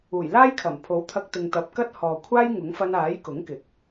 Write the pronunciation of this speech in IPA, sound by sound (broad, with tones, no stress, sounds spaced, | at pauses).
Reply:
uː˨˩ j l aː˥ j kʰ ɐ˨˩ m pʰ o˨˥ w t̪ʰ ɐ˧ k̚ t̪ ɪ˨ ŋ t̪ ɐ˨ p̚ k ɐ˥ t̚ h ɔː˨ kʷʰ aː˥ j ŋ ʊ˨˥ ŋ f ɐ˧ n aː˨˥ j k ʊ˨˥ ŋ k ɪ˨˥ k̚